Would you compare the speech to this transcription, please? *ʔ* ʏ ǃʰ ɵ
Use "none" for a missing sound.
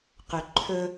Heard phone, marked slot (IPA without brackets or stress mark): q